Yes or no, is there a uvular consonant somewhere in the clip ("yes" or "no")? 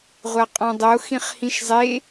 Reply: yes